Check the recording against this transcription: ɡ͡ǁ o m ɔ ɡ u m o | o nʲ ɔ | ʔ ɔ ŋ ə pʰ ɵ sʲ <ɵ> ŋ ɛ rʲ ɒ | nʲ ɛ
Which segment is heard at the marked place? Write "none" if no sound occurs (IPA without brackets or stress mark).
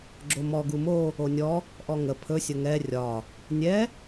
ə